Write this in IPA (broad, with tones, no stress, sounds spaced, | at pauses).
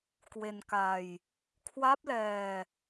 k w e˧ n k a˧ j | kʰ w a˦˥ p̚ l ɛː˧